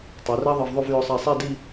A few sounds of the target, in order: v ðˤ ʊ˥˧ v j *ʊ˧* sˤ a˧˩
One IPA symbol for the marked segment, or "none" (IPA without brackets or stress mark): ʊ˧